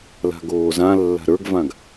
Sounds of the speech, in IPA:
la̤ɡoːzãlːa̤ ɾə˞ɡvãɡ

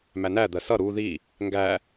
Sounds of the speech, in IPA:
mænæd̪ɜ sʌ ɾu ði | ŋɡæ

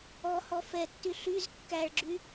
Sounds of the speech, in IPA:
ɔhɔ fɛtːy ɬyz kːæɭɡ͡ǁy

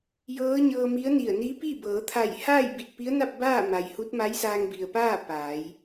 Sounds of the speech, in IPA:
jɤː˧˥ɲɤː˧mi˧˥ə̯ni˧˩ə̯ ni˧˥pi˥˨ bɤː˩˧t̪ʰa˧˩jhaː˥˨j bi˧˩t̚pi˧˥ə̯na˥˨p̚ baː˥˨ ma˩jhu˧˥t̚ ma˧˥j saː˧ŋbi˩ə̯paː˥˨ paː˩˧j

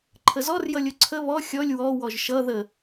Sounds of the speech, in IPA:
ǃʰəzɔr jʌlʲʊǀʰə βɔ xʲɔlʲ wɔ wɔʒʃʌ ðə

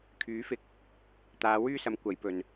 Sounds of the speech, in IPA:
kʰyː˨˥ fɪ˧k̚ | t̪aː˨˧ wyː˥sɐ˨˥m kʷɐ˨˥jpɵ˨n

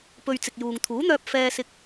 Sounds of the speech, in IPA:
pɵ˧ɥ t͡sɪ˨k̚juː˨ŋ t̪ʰuː˨˥n̪œː˧p̚ fɛː˧sɪ˧k̚

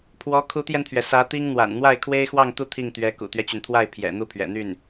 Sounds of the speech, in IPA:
pʰwɔ˧˥kʰu˧˥t̪jɛ˧nt̪ʰɥɛ˩ sä˧˥t̪i˥ŋn̪wa̰˨˩n n̪wa˥˩ɪ̯kʰwe˥ɪ̯xwɑ˥˧ŋt̪u˥˧ t̪ʰi˥˩ŋt̪ɥɛ˧˥ kṵ˨˩t̪ɥɛ˦t͡ɕy˩nt̪ʰwa˥˩ɪ̯ pʰjɛ̰˨˩ n̪u˥˩pʰɥɛ̰˨˩n̪y˥˩n

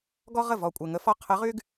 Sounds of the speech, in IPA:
ɡɔ˥ʁə˥˩ vɔ˨˩kʷʼɘ˨˩ ŋə˧˥ fɔ˥ qʰə˧˥ʁy˥ɡ

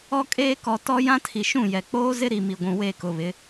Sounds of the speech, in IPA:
ɔ˦kʼeː˦kɔ˨ tɔ˦ jã˦tʰi˨ʃũ˦˨jɛ˨ k͡poː˦zɪ˦ɾi˨ mi˨ɡʷũ˨we˦˨ kʊ˨βɪ˨˦

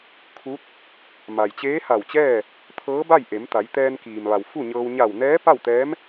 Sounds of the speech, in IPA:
kʰu˧˥t̚ | ma˩jt͡ɕeː˧˥ha˧˩wt͡ɕɛː˥˨ | t̪ʰɤː˧˥ba˥˨jʔe˩˧mt̪a˩˧j t̪ɛː˧nkiː˩mʋa˩w fu˥˨ɲɤː˧w ɲa˧˩wnɛː˧˥ pa˥˨wt̪ɛː˧˥m

